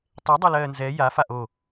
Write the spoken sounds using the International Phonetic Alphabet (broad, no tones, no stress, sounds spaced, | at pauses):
tˤ ɛ dˤ ɜ l ɜː n z ɛ j a f a ʔ o